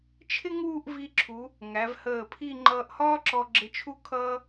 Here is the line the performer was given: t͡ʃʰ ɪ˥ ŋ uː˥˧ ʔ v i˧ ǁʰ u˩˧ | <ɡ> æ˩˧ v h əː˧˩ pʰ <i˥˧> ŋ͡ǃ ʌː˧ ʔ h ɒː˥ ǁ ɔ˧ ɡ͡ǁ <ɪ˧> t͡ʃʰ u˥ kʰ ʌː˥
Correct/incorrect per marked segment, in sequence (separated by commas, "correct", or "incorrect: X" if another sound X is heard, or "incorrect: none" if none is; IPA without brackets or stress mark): incorrect: ŋ, correct, correct